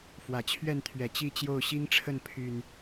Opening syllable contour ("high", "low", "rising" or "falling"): low